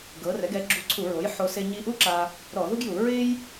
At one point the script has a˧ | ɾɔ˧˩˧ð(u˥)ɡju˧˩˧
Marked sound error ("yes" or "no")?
no